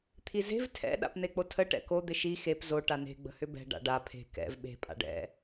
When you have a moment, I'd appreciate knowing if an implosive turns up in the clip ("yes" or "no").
yes